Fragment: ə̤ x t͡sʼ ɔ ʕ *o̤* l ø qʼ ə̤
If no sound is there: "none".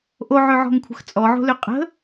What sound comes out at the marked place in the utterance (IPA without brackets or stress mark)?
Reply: o̤